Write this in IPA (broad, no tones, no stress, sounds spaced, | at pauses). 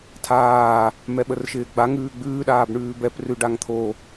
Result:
tʰ aː | m ɛ ɓ ə r ʃ ɪː ɡ͡b a ŋ ʉː ɡ͡b ʉː ɗ aː b ɳ ʉː b ɛ p r ʉ ɖ a ŋ t̪ʰ o